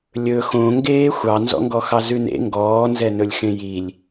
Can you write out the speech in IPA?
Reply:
lʲɵ xõŋɡeː xʷɑnzɔ̰ŋɡɔxɑ zʉnḛ ŋɡɔːnzɛnɵlʲxẽ jilʲ

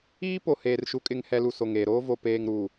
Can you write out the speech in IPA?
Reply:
iː˦ po˨heː˨rʃu˨˦ kʼɪ˨ŋhɛ˨lu˨ so˨ŋeː˨ɾoː˦ vo˨peː˨ŋɾuː˨

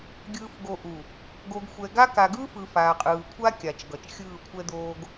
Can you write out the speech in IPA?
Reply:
ɡʲɯː˨fɡo˨ ʔu˨ | ɡo˨ɡxʷɛ˨ɡa˦ ka˨ɡɯː˦fɯ˨ faː˨qʼɯː˨kʷʰa˦kʲa˨t͡ʃ ɡʌ˨t͡ʃ xʲɯː˦˨kʷʰɛ˦d̪oː˦ɡ

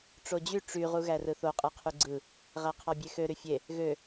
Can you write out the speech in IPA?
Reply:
ʈ͡ʂod͡ʑy ʈ͡ʂy ʁuɣærɯθo qʼɯqʰyɡ͡ǀɯ | ʁæqʰɑbʲexø ɾyfʲe | ɣø

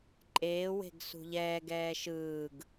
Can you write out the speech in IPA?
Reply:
ǃʼeːwe̤ɡ sṳʎɛːɡɛː ʃɯːɡ

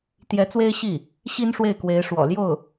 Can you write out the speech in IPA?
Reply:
t̪jɛ˧˥t͡swe˥ɪ̯ ɕi˥˩ | ɕi˥nʂwe˥˩ɪ̯kwe˧˥ɪ̯ ʂwɔ̰˨˩ljo˥˩ʊ̯

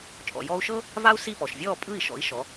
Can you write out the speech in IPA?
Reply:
t͡ʃʼɔ̰˩jɔː˧u̯ʃɤ˥ | va˥u̯si˥˩pɔ˩ʃ vʲɔː˥˩ pʼɯ˥˩i̯ʃɔ̰˩˥i̯ ʃɔ˩˥

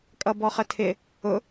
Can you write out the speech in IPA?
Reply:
kʼʌbɔχətʰɪ | ʊ

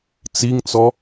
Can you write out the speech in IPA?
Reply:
t͡siŋt͡sɔ

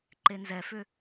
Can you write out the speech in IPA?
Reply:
ǃenzɛfʏ

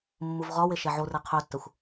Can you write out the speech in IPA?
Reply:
mːuvʁɒwe ʃɛʕore qʰøtːɛxʷ

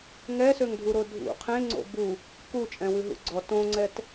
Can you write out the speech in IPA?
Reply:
ŋɛsøŋdʱuɾo dʱṵ qʰẽŋ͡ǀo̰ bu | kut͡ʃʼɛ̃wʉɦṵ ɡ͡ǀɔ tõŋ͡ǀɛt

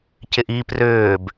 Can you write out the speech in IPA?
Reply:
cɪʔi prʏːb

